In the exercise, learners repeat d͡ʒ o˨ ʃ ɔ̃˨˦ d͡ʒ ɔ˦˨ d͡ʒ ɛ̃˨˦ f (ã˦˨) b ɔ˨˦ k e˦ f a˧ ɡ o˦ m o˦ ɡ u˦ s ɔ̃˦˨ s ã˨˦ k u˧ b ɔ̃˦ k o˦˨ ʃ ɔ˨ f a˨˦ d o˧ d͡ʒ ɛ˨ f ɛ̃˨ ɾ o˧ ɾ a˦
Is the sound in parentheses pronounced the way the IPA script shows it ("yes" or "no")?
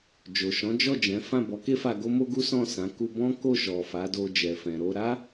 yes